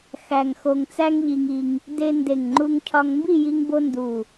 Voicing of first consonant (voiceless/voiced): voiceless